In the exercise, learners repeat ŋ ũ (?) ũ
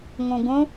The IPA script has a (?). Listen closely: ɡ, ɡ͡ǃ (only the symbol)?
ɡ